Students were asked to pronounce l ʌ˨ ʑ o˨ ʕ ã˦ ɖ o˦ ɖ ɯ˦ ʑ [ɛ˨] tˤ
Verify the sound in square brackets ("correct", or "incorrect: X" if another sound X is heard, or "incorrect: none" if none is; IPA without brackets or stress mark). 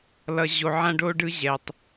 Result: correct